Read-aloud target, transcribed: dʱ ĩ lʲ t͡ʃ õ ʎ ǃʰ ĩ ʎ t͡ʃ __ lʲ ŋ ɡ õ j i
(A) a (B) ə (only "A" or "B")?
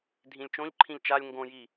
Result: A